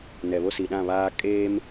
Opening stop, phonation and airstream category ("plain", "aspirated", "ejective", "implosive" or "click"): implosive